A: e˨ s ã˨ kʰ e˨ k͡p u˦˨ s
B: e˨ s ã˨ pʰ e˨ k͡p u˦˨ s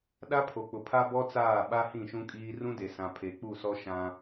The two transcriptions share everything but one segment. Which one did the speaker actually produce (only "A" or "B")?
B